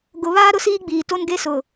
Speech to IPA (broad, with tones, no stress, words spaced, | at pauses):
ɡʊ˨ βaː˦ ɾʊ˦siː˦ɡ͡biː˨ to˦nɡe˦ sʊ˨